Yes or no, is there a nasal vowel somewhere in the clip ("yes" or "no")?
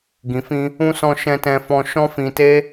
yes